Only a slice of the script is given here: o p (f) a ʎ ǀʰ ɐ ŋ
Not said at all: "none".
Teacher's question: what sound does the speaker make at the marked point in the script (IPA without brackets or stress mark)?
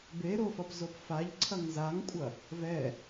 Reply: f